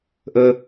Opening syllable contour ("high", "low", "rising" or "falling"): high